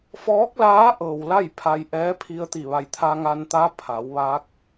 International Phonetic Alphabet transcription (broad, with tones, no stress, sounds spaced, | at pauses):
f ɔː˧˥ k̚ l aː˧˥ ʔ ɤː˩ w l a˥˨ j pʰ a˧ j ʔ ɛː˧˥ pʰ i˧ ə̯ t̪ i˧˩ ʋ a˧˩ j t̪ʰ a˧ ŋ a˧ n t̪ a˧˥ pʰ a˩˧ w ʋ a˧˥ k̚